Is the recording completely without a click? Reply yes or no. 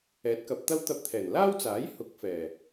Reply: yes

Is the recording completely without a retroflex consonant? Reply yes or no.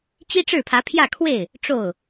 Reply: no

